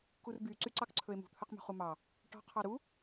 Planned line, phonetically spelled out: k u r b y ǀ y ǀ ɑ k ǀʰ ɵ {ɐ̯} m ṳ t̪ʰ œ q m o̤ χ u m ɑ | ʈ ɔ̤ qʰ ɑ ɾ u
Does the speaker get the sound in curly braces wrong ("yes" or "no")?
yes